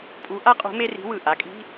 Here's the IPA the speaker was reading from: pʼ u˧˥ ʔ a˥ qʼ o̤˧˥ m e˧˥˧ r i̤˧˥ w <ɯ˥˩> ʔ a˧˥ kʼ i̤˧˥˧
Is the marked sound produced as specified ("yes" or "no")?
no